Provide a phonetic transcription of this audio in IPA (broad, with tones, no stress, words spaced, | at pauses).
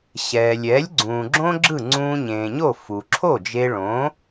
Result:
ɕɛː˩lʲɛː˩˥lʲ ɡ͡ǀũː˩ɡ͡ǁõ˥ɡ͡ǁɯ˥˩ ŋ͡ǀũː˧ɲẽː˩ɲo˥˩ fu˩ǁʰo˥˩d͡ʒe˧ ɭõ˩˥